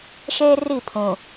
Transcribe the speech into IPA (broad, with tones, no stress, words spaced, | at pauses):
ʃeː˦ ri˦˨ pʰũ˨